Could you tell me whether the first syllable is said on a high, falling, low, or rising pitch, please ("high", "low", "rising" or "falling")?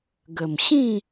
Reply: low